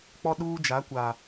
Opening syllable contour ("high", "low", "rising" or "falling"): high